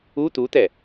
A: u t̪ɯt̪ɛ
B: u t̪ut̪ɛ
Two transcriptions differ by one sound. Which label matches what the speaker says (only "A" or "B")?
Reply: B